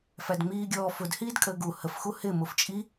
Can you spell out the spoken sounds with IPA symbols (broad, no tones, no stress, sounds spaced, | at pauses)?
f æ d ŋ͡m iː ɡʲ ɔː f ʊ d h iː d kʼ əː ɡ u h ə f x u h ɪ m ʊ f t͡ʃʼ i